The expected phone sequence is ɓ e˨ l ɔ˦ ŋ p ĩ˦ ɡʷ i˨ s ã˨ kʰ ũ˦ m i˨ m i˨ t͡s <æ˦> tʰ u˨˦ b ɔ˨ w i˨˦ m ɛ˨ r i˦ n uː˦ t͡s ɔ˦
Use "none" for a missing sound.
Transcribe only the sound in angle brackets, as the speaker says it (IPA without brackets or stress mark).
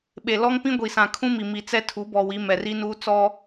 ɛ˦